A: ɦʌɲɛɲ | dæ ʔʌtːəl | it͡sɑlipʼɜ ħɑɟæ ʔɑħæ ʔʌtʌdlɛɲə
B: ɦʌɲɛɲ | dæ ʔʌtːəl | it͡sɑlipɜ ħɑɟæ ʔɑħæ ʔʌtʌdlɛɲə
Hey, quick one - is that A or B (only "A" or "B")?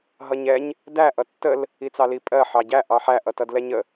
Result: A